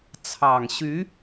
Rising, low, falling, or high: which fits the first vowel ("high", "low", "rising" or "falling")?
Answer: low